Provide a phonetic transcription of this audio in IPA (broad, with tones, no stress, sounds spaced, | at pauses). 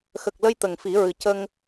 x ə˨˩ k̚ l ə˧ j t̪ ə˨˩ ŋ f i˨˩˦ ɹ ɨ˨˩ c ə˧ ŋ